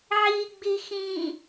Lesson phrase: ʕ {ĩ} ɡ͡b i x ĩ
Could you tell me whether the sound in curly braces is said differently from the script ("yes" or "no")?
yes